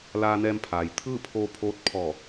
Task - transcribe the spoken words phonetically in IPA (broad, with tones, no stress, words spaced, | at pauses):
laː˧nɛː˧mpʰaː˩j t̪ʰɯː˥˨pʰoː˧pʰoː˧˥t̚ pʰɔː˧˩